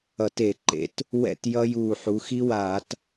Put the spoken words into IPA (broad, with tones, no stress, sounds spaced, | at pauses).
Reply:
ʌ˧˩˧ t e˧˩˧ ǃ ḛ˩˥ t | w ɛ̰˥˨ t j ʌ˦˥ j uː˧˩ ħ u˩˧ x i˦˥ w aː˧˩˧ t